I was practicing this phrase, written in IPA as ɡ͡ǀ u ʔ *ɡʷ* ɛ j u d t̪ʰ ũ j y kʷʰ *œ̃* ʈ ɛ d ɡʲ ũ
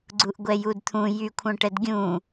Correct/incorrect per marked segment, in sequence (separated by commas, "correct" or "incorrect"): correct, correct